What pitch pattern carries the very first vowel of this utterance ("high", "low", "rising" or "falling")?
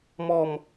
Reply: falling